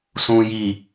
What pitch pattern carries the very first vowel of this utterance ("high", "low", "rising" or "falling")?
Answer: low